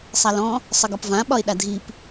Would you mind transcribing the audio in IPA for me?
sˤalɔ̃ | sˤəɡɒpvã ɓɒɪ̯ɗadʱip

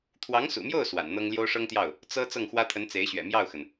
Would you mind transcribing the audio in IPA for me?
t̪ʰwɑ˧˥ŋsṵ˨˩mjo˥˩ʊ̯ swa̰˨˩nn̪ɤ˥ŋ ljo˥ʊ̯ʂɤ˥ŋt̪jɑ˥˩ʊ̯ | t͡sɤ˥ t͡sɤ˥˩ŋxwä˥t̪ʰə˧˥n t͡se˧˥ɪ̯ɕɥɛ̰˨˩ mjɑ˥˩ʊ̯xə˩n

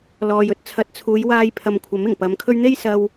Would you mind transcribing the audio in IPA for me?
lɔː˨jɵ˥t̚ t͡sʰɐ˨˥t̚t͡sʰuː˨˧jwaː˧jpʰɐ˨m kʷʰɐ˨˥mɪ˨˩ŋpɐ˨˧mkʰɵ˥ɥ n̪e˥jsɐ˧w

